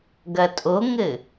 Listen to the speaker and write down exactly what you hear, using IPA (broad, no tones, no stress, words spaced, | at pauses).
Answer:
ɡɐtʼoŋɘ